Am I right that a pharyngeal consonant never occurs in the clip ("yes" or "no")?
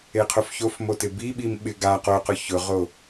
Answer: yes